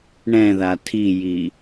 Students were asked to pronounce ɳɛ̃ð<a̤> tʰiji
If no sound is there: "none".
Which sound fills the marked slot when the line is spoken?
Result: a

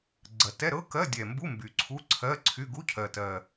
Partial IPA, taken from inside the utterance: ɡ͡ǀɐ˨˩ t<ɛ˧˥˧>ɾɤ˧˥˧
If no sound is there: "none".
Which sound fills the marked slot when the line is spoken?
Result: ɛ˧˥˧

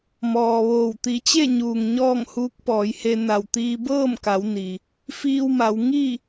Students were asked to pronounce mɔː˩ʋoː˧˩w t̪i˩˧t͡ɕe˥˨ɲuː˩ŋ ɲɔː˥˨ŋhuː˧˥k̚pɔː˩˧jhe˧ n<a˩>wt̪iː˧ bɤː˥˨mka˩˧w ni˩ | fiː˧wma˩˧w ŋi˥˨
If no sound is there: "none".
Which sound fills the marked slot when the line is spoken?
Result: a˧˩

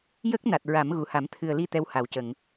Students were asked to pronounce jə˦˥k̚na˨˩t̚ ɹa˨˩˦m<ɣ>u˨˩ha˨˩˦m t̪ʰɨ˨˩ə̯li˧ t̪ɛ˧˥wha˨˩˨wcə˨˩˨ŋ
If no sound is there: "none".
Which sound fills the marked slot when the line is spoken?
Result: ɣ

